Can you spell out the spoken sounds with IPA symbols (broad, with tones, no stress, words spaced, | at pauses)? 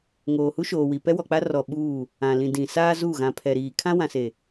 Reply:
ŋoː˨hu˦ʃoː˨wi˨ pɛ˦wɔ˨k͡pa˦ rɔ˨ ɓuː˦˨ | ã˨ lĩ˨dĩ˨ saː˦ zu˦˨ ɣã˨pʰɛ˨ɾiː˨ kʰã˦wã˨se˨